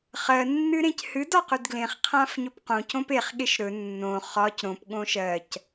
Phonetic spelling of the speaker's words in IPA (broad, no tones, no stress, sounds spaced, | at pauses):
χ ɜ nː ɨ ɾ ẽ c h ɨ d ɒ q ɵ d ɡ l ẽ χ qʰ ã f ɲ ɵ p q õ c õ p e χ ɠ e ʃ ɾ ɵ nː õ χ ɒ c ɾ õ p ɠ õ ʃ ɜ c